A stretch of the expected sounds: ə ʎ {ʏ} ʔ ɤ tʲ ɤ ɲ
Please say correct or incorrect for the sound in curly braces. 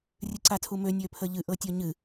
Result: incorrect